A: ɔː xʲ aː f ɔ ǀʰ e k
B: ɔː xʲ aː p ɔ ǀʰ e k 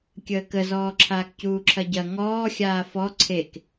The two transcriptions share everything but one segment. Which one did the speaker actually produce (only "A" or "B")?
A